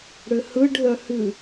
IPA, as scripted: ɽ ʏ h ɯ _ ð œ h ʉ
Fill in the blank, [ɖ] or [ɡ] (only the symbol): ɖ